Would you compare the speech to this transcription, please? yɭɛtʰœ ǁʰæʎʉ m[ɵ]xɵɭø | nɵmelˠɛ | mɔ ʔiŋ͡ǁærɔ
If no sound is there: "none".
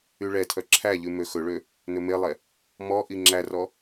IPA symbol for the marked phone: ø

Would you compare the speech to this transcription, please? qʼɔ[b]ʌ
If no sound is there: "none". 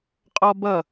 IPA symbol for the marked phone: b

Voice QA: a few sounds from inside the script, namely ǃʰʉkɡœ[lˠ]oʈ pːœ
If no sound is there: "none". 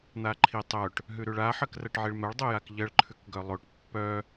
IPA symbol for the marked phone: lˠ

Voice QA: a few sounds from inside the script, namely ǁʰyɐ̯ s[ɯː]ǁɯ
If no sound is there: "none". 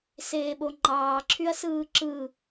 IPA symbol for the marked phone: ɯː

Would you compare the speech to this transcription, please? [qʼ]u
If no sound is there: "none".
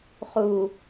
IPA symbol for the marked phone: χ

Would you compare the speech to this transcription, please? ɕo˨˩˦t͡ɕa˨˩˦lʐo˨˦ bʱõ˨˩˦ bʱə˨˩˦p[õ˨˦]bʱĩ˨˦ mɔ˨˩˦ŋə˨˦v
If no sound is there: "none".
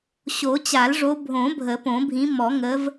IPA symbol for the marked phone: õ˨˩˦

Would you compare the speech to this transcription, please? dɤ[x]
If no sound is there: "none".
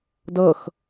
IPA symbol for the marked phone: x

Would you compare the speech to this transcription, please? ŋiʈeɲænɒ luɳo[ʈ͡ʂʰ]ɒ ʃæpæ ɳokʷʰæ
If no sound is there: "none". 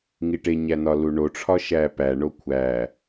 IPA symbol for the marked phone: ʈ͡ʂʰ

